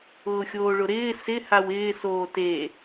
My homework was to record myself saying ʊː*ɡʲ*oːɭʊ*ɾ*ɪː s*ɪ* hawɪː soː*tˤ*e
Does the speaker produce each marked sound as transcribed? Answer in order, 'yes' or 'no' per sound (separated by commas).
no, yes, yes, no